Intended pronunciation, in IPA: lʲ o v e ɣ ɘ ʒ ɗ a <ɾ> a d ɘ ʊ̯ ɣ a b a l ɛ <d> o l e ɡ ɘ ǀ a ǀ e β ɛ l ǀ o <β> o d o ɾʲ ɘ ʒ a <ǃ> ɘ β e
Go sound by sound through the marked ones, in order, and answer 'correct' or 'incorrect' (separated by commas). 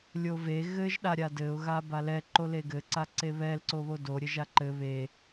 incorrect, incorrect, correct, correct